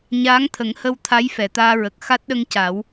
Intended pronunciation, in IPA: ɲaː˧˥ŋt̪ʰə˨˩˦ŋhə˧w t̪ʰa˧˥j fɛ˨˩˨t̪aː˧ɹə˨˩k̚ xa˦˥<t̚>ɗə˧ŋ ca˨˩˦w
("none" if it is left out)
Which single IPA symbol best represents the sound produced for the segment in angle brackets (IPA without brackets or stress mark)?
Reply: t̚